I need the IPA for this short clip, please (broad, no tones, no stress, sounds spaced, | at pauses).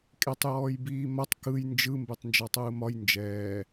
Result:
kʼ e tˤ j ɔː j b iː m ɐ tˤ k ɯ j n d͡ʒ ɯ m b e tˤ n d͡ʒ ɔ tˤ ɯː m ɒ j n d͡ʒ ɛː